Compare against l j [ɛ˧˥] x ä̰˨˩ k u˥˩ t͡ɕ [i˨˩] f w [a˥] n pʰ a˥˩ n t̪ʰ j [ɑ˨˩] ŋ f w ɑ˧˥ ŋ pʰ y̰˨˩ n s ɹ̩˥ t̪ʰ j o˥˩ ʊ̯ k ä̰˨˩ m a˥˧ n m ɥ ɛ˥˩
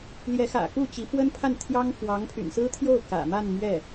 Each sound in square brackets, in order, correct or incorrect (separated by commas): correct, incorrect, incorrect, incorrect